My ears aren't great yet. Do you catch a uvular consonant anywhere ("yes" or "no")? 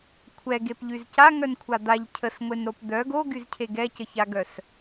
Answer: no